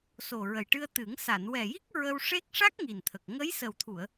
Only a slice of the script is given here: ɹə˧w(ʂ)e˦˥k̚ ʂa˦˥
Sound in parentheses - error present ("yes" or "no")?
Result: no